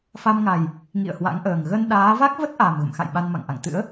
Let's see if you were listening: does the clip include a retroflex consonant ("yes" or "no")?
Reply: no